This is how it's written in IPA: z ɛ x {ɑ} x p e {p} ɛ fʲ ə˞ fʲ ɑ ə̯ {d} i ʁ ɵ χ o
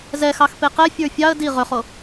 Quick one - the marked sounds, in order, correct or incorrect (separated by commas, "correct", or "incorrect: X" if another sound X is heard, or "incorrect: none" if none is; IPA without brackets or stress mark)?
correct, incorrect: q, correct